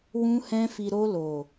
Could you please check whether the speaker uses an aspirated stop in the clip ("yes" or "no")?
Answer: no